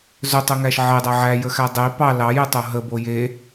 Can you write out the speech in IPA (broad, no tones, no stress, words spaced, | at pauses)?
zɵtˤəŋæʃ ʕedˤæ ʕæjəxæ dˤei̯ pɑ lɑjetˤo ɦəbo je